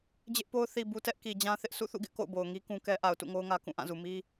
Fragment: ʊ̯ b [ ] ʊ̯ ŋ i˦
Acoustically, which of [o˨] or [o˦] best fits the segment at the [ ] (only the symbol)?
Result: o˨